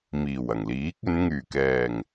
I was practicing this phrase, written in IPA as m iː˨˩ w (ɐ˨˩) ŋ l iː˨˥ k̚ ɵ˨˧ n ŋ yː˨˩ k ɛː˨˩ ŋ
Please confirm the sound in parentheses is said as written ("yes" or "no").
yes